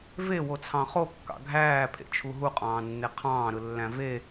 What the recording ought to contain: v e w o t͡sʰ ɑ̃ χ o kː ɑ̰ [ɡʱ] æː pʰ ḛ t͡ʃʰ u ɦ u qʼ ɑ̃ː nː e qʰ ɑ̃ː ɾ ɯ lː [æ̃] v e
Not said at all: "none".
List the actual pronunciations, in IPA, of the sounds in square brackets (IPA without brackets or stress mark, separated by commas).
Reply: ɡʱ, æ̃